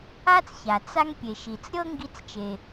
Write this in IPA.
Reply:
a˥ t͡s ç a˩ t͡s a˥ ŋ pʲ e˩ ʃ i˩ t͡s ɾʲ ɤ˥ ŋ ɡ i˧ t͡s t͡ʃ e˩

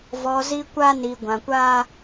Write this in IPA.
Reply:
v ɔ˨ z i˦ kʷ a˦ n i˨ ɡʷ ã˨ kʷ a˦

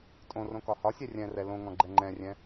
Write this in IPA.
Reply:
tʼ õ r õ k ɒ h ɒ sʲ ɛ rʲ ɛ̃ r ɛ l õ ŋ ɔ̃ ɡ͡ǃ ɛ ŋ͡ǃ ɛ̃ rʲ ɛ̃

